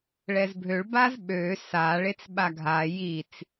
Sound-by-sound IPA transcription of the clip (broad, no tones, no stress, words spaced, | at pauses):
ɭɛzbʱøɭ bazɓø sa ɭet͡sɓaɡʱa jit͡s